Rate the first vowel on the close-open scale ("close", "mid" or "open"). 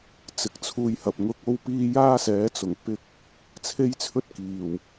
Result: close